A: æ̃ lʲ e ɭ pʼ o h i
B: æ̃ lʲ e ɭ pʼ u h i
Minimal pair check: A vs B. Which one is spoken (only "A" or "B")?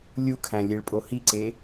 A